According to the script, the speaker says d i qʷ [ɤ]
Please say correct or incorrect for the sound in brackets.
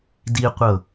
correct